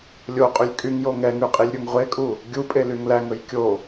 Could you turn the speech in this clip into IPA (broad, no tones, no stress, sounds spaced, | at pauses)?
lʲ o qʼ y lʲ kʼ y ŋ j o ŋ ɛ ŋ ʉ qʼ i lʲ ɾʲ o ŋ ʁʷ e kʼ u | ɡʲ u pʼ e l y ŋ l æ ŋ ɵ j kʲ o